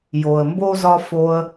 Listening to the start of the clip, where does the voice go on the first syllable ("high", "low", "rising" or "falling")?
low